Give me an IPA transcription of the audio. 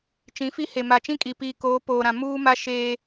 t͡ʃ ĩ˨˦ f i˦ h e˨ m a˨ t͡ʃ ĩ˦ kʼ i˨ p iː˨ k oː˨˦ p oː˨ ɾ ã˨ m uː˦ m a˦ ʃ e˦

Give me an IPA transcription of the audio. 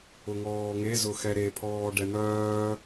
ʊ ŋ ɔː ŋ e z ʊ x ɛ ɾ e pʰ ɔː ɖ ɛ n̪ œː

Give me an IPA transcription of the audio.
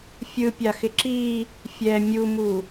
fʲ ɯ pʲ a x ɪ ǁ i | fʲ ɛ mʲ u m u

